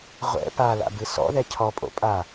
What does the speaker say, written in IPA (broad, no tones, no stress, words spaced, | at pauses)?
ʁʷɛ̰ pala̰bɨ sɔ̰ðɛ cʰɔpʼo̰ pʼa